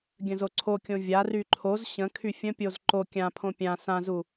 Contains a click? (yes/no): yes